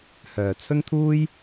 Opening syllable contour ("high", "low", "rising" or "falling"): low